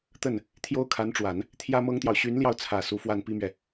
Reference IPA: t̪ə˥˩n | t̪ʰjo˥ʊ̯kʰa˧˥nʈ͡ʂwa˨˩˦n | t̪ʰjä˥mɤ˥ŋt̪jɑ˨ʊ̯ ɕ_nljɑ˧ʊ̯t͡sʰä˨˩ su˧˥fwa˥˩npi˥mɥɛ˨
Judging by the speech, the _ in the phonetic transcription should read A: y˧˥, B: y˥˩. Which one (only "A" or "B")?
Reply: A